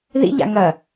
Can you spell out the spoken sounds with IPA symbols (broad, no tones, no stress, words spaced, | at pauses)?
ðḭ ʎa̰ŋɐ